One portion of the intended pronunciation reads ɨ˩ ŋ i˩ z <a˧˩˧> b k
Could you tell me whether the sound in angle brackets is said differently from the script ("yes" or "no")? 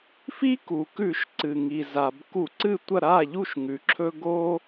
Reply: yes